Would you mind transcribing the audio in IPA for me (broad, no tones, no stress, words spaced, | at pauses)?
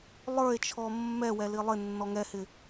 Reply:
lˠə˞e̯t͡ʃʰɔ mːɛwɛli lˠɪnːɔ ŋɛhɪ